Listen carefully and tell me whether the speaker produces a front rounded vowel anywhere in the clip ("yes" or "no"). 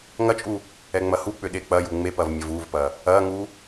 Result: yes